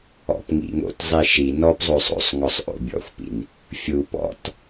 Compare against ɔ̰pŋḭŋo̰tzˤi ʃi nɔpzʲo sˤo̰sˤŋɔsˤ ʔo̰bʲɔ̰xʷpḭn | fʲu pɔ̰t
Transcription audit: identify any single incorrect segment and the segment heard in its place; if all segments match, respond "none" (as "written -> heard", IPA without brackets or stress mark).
zʲ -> zˤ